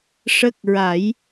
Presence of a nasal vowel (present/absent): absent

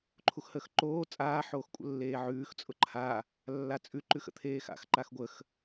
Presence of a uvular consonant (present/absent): absent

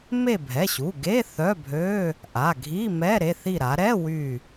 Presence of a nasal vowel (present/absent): absent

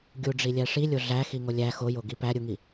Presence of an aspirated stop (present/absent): absent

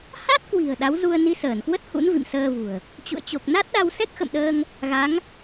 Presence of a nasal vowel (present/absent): absent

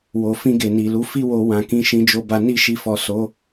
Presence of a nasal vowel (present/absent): present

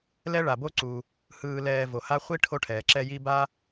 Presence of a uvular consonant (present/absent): present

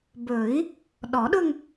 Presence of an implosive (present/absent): present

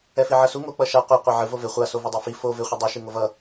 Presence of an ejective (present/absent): absent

